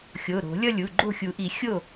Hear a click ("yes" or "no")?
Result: yes